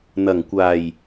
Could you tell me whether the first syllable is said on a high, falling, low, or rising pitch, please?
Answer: low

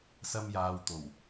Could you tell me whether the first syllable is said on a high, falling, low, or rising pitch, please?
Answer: high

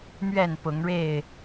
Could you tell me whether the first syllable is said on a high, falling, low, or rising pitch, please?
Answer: falling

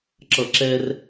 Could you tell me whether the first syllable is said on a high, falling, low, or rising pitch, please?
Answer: low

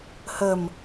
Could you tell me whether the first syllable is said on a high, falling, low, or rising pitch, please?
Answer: low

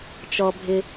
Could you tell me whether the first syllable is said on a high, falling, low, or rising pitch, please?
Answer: low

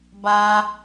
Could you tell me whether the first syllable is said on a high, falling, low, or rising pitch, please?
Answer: high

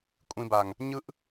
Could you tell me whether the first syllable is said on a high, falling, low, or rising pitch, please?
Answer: low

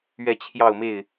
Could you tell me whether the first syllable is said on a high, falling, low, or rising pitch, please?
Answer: falling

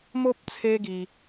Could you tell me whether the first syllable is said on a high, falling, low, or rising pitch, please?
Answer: high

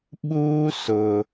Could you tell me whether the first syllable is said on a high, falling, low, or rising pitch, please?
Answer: high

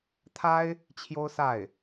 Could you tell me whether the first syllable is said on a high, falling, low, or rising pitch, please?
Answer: high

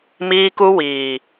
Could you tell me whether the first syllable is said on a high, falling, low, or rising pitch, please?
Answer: high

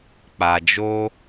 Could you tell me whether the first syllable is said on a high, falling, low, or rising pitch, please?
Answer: low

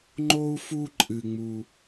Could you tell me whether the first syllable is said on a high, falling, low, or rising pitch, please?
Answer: high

